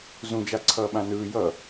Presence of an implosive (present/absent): present